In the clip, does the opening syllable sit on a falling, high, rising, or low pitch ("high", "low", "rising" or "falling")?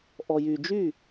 low